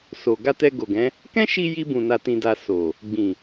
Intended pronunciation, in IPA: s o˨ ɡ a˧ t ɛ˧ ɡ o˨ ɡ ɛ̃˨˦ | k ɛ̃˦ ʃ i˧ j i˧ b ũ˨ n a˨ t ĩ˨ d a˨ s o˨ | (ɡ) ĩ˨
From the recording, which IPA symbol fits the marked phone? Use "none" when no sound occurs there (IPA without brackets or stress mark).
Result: ɡ͡b